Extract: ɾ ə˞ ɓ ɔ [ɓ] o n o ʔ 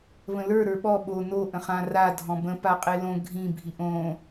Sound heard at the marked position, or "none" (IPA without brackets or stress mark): ɓ